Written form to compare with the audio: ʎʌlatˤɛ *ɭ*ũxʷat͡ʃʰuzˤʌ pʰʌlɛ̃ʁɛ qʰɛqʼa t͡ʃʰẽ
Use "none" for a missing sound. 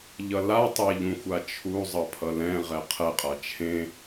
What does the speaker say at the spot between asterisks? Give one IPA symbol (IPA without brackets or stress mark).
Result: ʎ